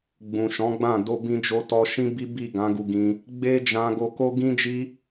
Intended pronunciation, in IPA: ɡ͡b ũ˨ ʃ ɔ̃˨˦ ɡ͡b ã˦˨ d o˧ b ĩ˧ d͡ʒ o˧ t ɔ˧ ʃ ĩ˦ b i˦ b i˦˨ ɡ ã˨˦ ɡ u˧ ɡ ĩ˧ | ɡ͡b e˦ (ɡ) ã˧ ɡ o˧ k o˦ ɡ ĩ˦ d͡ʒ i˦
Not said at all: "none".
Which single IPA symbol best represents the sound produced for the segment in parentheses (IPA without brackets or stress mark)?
d͡ʒ